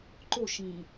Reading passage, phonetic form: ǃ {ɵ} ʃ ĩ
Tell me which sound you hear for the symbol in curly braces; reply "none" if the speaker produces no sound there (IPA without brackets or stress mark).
o